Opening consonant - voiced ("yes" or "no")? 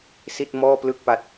no